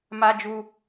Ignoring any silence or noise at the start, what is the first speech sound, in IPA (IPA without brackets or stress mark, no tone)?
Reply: m